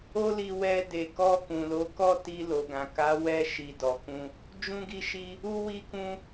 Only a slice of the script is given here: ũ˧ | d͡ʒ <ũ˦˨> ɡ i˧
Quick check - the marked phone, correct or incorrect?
incorrect